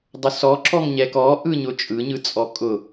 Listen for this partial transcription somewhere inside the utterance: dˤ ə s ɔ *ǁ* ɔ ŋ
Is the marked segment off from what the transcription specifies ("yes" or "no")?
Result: no